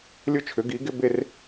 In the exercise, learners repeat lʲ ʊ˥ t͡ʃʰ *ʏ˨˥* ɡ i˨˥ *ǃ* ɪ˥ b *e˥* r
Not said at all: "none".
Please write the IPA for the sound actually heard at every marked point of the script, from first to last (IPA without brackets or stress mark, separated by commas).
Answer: ʏ˨˥, ɡ, e˥